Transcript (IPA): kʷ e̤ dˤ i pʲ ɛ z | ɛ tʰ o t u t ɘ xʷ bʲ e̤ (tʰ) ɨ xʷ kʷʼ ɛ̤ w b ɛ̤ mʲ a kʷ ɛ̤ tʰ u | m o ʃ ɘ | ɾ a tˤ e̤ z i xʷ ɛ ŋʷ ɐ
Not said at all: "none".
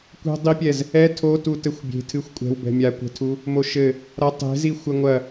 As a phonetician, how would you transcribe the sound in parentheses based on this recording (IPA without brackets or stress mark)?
tʰ